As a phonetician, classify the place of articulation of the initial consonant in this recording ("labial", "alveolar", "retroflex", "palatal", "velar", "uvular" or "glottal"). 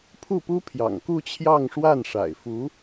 labial